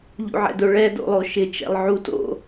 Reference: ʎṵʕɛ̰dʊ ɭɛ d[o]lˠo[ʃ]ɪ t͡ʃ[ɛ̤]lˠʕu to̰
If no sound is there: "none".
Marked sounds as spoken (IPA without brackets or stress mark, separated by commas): o̰, ʃ, ɛ̰